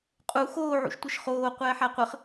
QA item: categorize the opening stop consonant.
ejective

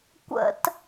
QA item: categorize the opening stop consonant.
plain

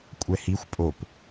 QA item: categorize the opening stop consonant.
ejective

